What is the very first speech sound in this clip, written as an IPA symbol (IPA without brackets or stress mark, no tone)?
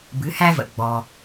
b